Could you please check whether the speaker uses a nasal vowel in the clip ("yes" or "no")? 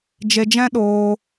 yes